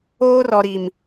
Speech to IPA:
oː˦rɔ˨ɾi˨m

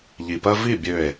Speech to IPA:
ʎi˨pɜ˦ vi˦˨ bʲø˦˨e̯

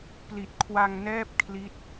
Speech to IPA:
pli˨˩t̚kʰwa˧ŋnɛː˥˩p̚ kʰli˦˥t̚

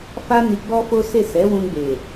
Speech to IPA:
fa˦ni˧ ɡ͡bɔ˦fo˦se˦˨ sɛ˨˦wũ˧ɡ͡be˨

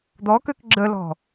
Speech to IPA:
d̪ɔkøk ɡ͡ǁəlɔ̤

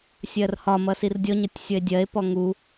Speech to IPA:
sʲɜrhɒmʌ sirdʲɔɲʌtʲ sʲʌe̯dʲɜe̯pɔ ŋu

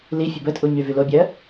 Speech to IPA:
lifʲə bətʼu ɲyvylobʲɜ

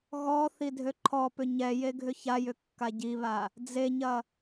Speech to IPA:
ɣɔ θidʱøǃʰɔpʏ ɲɛ jeɡʱʏçajʏ kːaɟiβa | d͡zeɲɐ

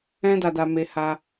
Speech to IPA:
ɛ̃˦ da˧da˧me˧ ha˧

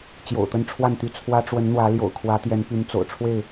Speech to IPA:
t͡ɕjo̰˨˩ʊ̯t̪ə˦nʈ͡ʂʰwa˥˨nt̪y˥˨ t͡sʰwä˦ʈ͡ʂwə˨˦n n̪wä˨˦ljo̰˨˩ʊ̯kʰwä˨˦t̪jɛ˨˦n py˨˦nt͡so̰˨˩ʊ̯ ʈ͡ʂʰwe˥˨ɪ̯

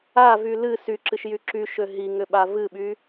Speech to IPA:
avy lɨ syǁɨʃjy ǁyʃø ɦiŋʏɓa vɨɓy

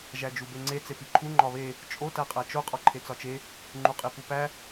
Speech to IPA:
ʒæd͡ʒubeŋ͡ǀe t͡sepiǃʰu ŋ͡ǃɒβe | t͡ʃʼo tæqʼæt͡ʃo qʼɒǃʰet͡sɒt͡ʃe | ŋ͡ǃuqʼipupæ

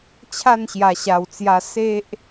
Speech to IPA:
t͡ɕʰa˥˧nɕja˨˩ɕa˨˩wt͡sja˧ se˦ʔ

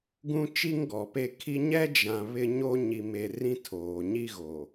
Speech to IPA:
ɡũ˦t͡ʃi˦ŋɡɔ˨pe˦ kʰi˦ ɲɛ˦d͡ʒã˨ βɪ˦ɲo˦ ɲi˨me˨ rĩ˦tʰoː˨ ɲi˦ ɣo˨

